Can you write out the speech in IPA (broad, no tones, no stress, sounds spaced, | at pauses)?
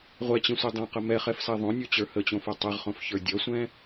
ʁʷ ɛ t͡ɕ ẽ sʷ ɛ dˤ ɛ̃ q ə m ɛ χ ɛ f s ɛ ðˤ õ nʲ o t͡ɕ ə˞ h ə t͡ɕ õ f o tˤ ɛ ʁ χ õ f ç ə˞ dʲ ʌ sʷ ɛ̃